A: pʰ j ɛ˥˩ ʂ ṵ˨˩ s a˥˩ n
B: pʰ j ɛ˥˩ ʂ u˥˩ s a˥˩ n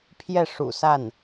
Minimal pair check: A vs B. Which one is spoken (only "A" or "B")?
A